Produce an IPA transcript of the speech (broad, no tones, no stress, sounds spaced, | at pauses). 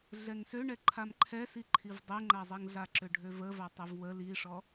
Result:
ɮ ɛ ŋ s ø ɳ ɛ ǃʰ a m ǃʰ ɛ s i ǃʰ i v dˤ ɛ ŋ͡ǃ a zˤ ɛ ŋ ɮ a ǁ ø ɖʱ ø v ə v a tˤ ɛ v w ə l i ʂ ɔ